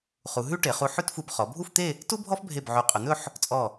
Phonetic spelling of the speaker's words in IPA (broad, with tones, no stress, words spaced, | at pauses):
χu˩˧ɦʉ˥ ʈe˩˧χu˧ħʉ˥tfu˧b χɔ˩˧bʱu˥˧ft̪e˥˧ | tu˥bʱɔ˥fbʱe˧˩bʕy˩˧ qʼɵ˩˧n̪ɵ˥˧ħ | t͡sʼɔ˧˩